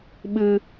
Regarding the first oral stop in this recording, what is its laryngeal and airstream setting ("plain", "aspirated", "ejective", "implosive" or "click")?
implosive